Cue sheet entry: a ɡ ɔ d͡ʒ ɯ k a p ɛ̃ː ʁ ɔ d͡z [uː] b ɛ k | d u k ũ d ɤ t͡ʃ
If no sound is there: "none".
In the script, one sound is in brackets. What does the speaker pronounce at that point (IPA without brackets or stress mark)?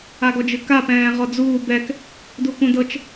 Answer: uː